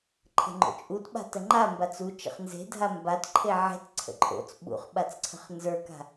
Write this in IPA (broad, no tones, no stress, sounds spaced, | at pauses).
ǃʰ ə̤ ŋ͡ǃ o̰ t͡ʃʼ u t ɓ a̤ t ə ŋ͡ǃ a m b a t͡s u t͡ʃ ə̰ χ n z e̤ dʱ a m b a t ǃʰ e ʕ e̤ t ǀʰ ə̰ ǃʼ o̰ t͡s ɓ ṵ χ ɓ a t͡s ǀʰ ə̤ χ n z ə˞ k a̤